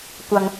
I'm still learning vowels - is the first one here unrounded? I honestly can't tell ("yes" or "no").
yes